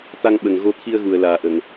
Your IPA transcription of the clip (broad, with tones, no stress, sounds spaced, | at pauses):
t̪ a˧ ŋ ɓ ə˨˩ ŋ ɣ o˧ t̪ʰ i˧ ə̯ ɣ u˨˩ ə̯ l aː˨˩ ʔ ə˨˩˨ ŋ